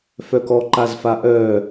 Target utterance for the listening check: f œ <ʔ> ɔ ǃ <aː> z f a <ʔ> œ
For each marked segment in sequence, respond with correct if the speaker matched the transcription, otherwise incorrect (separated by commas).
incorrect, incorrect, correct